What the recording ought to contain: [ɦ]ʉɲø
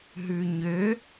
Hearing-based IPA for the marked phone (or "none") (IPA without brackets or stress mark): ɦ